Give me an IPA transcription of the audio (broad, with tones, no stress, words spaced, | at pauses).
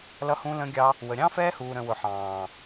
lʌ˧hũ˧lə̃˧ɡʲɑ˧ | wə˨ɾʲɑ̃˦ fɛː˦huː˨ɾə̃˨ wʊ˨ħɑ̃ː˨